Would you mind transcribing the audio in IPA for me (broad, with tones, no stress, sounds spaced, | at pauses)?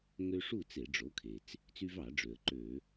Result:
ŋ ø˦ ʂ u˥˨ t͡s e˧˩˧ ɖ͡ʐ o˩˥ kʰ e˩ t͡s | t͡s y˦ v ɑ˧˩˧ ɖ͡ʐ ø˩ ə̯ ǃ ø˧˩˧